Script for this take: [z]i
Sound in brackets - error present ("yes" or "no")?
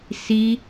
yes